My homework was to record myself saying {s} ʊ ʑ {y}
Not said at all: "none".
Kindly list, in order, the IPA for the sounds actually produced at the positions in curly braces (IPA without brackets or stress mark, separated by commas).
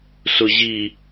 s, i